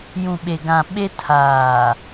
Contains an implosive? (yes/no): yes